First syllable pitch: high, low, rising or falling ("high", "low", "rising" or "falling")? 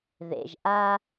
low